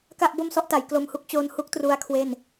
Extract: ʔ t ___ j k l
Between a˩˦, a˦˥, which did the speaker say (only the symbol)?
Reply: a˩˦